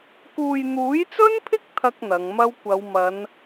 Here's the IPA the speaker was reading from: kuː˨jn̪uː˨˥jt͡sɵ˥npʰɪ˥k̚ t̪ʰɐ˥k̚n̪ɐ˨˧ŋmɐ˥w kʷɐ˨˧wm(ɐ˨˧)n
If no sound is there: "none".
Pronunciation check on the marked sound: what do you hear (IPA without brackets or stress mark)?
ɐ˨˧